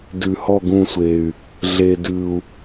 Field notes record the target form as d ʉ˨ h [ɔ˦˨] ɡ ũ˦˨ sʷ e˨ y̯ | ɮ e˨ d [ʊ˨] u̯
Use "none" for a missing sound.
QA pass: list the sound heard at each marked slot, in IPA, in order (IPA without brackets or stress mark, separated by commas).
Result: ɔ˦˨, ʉ˨